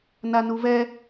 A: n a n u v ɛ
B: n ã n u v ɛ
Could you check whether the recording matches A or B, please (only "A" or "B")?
A